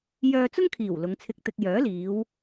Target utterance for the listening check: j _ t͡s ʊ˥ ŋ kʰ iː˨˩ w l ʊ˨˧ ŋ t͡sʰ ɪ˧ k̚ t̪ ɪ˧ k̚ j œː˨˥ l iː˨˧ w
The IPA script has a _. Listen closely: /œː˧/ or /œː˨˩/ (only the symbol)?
œː˧